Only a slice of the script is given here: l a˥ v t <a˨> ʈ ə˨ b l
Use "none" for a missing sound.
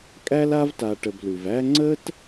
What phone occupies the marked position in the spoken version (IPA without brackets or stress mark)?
a˨